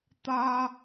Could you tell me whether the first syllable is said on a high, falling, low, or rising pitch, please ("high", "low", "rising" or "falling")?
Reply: high